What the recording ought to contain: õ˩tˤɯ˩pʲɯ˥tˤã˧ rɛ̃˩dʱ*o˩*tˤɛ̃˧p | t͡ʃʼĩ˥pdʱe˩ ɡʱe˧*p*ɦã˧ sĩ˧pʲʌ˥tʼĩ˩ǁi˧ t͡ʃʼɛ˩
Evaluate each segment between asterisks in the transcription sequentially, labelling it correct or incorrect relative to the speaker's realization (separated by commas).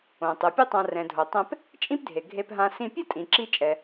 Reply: correct, correct